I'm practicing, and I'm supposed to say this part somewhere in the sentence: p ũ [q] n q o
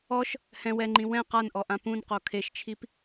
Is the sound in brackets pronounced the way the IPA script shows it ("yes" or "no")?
no